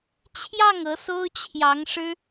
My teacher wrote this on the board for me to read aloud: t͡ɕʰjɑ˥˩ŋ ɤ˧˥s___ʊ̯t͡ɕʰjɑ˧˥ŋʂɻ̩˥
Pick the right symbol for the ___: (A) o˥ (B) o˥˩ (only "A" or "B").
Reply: A